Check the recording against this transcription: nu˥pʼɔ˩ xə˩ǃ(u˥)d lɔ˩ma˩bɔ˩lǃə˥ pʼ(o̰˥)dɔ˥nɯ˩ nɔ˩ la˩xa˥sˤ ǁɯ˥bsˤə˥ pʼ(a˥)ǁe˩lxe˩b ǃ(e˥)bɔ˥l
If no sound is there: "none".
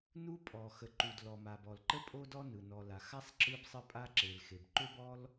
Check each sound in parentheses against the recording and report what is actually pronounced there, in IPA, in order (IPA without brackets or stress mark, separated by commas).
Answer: u˩, o˥, a˥, ø˥